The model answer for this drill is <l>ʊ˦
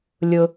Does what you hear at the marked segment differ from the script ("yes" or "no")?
yes